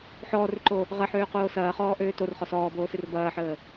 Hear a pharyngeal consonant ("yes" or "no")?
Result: yes